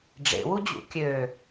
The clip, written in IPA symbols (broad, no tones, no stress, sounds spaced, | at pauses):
ɖ͡ʐ ḛ w u d͡ʑ ṵ kʲ ø